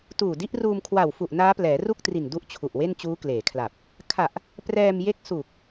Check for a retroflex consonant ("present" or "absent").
absent